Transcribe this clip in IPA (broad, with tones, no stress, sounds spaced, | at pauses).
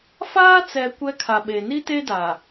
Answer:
f aː˦ t͡s ɛ˨ kʷ ɛ˦ kʰ a˨ ɓ e˨ n i˦ t e˦ d a˨